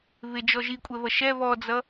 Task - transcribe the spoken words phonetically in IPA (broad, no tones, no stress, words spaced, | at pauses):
βɪd͡ʒɔ ʒikʷʼɛβʌ ʃɛ βɔd͡zʌ